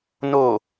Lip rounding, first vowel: rounded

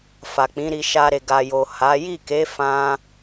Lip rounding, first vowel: unrounded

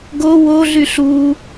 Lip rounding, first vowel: rounded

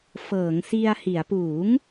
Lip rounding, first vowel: unrounded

